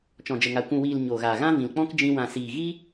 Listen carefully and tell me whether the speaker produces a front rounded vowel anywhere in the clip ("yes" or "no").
no